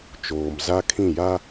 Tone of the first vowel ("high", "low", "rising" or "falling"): low